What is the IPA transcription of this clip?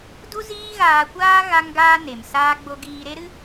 d u˦ z iː˦ ɣ aː˧ kʷ aː˦ ɣ a˦ ŋ ɡ aː˦ n e˨ m s aː˦ ɡ͡b o˦ ɡ iː˧ ɾ e˦ ɾ ɨ˦

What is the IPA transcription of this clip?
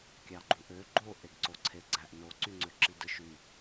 kʲ ɑ ɡ͡ǃ u ʔ ø ɡ͡ǃ o ʔ e ɡ ǀ o ǀʰ e ɡ͡ǀ æ ʔ n o ǀ y ŋ͡ǀ ø ǁ i d ɯ ʃ y

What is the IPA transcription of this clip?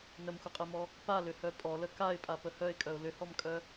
n ə m xʷ ə qʼ e m ɔ | p a l ʏ h œ pʼ ɔ l ə k a ɪ̯ pʼ a p ə h œ ɪ̯ kʼ œ ʊ̯ l ʏ h ɔ m kʼ œ

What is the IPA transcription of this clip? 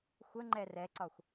xʷ ə ŋ͡ǃ ɛ r ɛ ǀ ɒ xʷ

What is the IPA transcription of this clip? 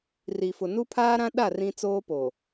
r i˨ f ʊ˨ n u˦ pʰ aː˦ ɾ ã˦ ɗ a˦˨ r ĩ˦ t͡s oː˦ p o˨

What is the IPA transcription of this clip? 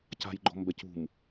c a̤ j ɡ͡ǃ ɔ̤ m b ɛ c ṳ m

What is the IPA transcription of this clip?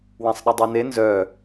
w ã sˤ ɗ ə dˤ a n e n z œ

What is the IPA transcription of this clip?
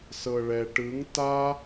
s ɤ ɭ ɛ ʈ ɯ ŋ t a

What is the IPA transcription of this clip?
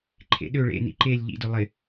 ǃʰ ḛ ɗ ø ɭ ḛ n ḭ ǃ e lʲ ʎ ḭ d ʊ lˠ ɪ

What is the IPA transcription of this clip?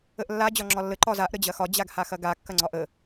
ə ʔ lː a d͡ʑ ɒ ŋ͡ǁ ɒ lː ə ǃ ɒ z a ʔ ɾ ə d͡ʑ ɐ x ɒ d͡ʑ a ɡ h a x ɐ ɡ a kː ɐ ŋ͡ǀ ɒ ʔ ə

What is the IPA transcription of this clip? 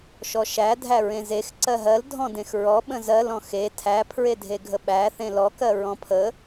ʃ ɔ ʃ æ dʱ æ ɹ ẽ z e x ǀ ɜ ɦ ɜ l dʱ ɔ̃ d ẽ x ɹ ɔ ɓ ə̃ z ɜ l ɔ̃ x e tʰ æ pʰ ɹ e dʱ e ɡʱ ə ɓ æ θ ẽ l ɔ k ɜ ɹ ɔ̃ pʰ ə

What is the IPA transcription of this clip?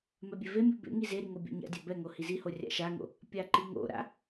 m ɛ bʲ e v e mʲ u b ḛ ŋ i z e ɾ i ŋ o bʲ a̰ ɲ a̰ dʲ a b ɛ ŋ o h i z i h o rʲ a̰ ʃ a ŋ o̰ | pʲ a ǃ i ŋ o̰ ɾ a̰

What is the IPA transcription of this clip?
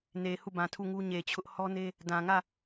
n e˨ h u˦˨ b ã˨ tʰ u˦˨ ŋ u˦ ɲ e˨ t͡ɕʰ ʊ˦ ʔ h ɔ˦ n e˦ | d ã˨ ŋ ä˦˨

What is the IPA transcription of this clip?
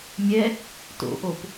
mʲ ɛ | t o̰ ʔ o p

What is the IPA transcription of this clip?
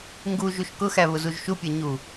ŋ ɡ u ʒ u ʃ k ʊ x æ β ʊ z u ʒ ʃ u pʲ æ ɲ u

